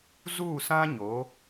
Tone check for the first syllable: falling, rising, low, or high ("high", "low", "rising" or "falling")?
falling